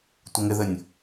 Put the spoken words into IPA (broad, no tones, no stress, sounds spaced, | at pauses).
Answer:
tʷ ə ŋ ɪ ð ɘ nʲ